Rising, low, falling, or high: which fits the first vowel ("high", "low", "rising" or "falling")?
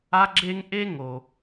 high